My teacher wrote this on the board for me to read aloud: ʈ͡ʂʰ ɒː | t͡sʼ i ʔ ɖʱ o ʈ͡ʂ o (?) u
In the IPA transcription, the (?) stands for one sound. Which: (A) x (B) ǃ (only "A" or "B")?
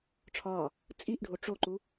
B